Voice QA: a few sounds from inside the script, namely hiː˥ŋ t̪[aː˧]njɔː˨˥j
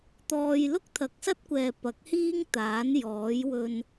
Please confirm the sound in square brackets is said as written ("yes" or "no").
no